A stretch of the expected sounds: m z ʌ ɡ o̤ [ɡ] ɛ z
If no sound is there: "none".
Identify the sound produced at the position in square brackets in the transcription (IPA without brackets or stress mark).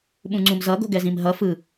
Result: ɡ